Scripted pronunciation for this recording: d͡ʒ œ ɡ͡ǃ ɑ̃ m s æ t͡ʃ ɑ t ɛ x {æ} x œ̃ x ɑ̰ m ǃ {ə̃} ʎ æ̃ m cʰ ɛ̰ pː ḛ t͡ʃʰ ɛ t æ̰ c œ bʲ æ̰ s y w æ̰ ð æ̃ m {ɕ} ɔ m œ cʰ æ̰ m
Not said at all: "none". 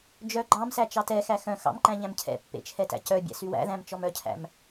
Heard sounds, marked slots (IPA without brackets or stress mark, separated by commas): æ, æ̃, t͡ʃ